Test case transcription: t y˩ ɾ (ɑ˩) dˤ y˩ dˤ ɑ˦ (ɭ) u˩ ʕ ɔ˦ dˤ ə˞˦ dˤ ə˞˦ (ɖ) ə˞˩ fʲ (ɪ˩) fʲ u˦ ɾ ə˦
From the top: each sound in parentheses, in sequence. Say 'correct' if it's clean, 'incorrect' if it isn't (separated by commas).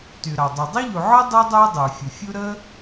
correct, incorrect, incorrect, incorrect